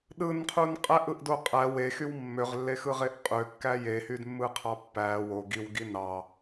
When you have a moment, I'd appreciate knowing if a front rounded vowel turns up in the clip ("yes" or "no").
yes